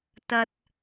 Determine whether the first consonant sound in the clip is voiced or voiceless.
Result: voiceless